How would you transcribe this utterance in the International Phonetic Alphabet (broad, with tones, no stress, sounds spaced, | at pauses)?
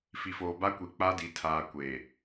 f i˨ f oː˨ b a˦ kʷ i˨ k͡p a˦ d i˨ tʰ aː˨ kʷ eː˨